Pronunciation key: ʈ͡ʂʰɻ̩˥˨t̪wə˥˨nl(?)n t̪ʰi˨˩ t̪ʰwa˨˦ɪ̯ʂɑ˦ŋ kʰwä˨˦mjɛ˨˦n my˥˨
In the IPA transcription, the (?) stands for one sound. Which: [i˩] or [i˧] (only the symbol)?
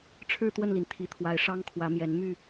i˩